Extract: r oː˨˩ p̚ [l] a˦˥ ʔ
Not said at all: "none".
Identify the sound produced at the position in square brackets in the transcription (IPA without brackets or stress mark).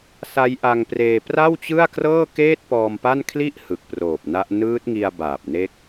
n